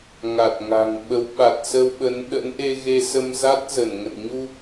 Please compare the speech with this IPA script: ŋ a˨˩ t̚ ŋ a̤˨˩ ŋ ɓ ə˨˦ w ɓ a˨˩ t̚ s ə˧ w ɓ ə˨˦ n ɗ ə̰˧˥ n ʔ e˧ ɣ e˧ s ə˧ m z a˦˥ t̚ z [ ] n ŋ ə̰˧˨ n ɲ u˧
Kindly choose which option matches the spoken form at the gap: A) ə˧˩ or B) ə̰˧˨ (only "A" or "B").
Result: A